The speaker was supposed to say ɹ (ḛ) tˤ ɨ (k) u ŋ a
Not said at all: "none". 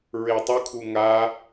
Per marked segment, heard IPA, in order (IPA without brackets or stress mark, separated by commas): e, kʰ